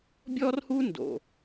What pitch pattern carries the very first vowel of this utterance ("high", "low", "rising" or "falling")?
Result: high